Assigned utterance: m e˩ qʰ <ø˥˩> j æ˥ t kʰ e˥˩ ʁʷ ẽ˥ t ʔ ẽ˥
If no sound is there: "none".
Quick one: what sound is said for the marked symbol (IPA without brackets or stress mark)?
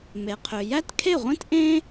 ø˩